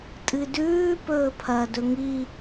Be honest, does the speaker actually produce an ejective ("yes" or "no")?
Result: yes